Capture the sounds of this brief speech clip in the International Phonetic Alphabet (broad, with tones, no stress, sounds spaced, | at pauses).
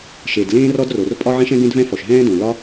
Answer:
ʃ e˩ d l ẽː˥ r ɔ˥ d r o˩ r pʼ ɒ˥ ʕ ẽ˥ ʃ ɛ̃˥ ɡ ẽ˥ d v ɛ̃˥ f ɔ˩ ʃ ɦ ɛ̃ː˥ d õ˩ l ɒ˥